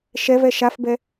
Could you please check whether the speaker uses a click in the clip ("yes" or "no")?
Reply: no